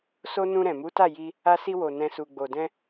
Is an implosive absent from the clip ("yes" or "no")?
yes